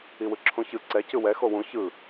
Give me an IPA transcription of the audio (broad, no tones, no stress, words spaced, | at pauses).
iwɯǁʰũçɯ ǀɛ cɯwɛ xowũ çɯ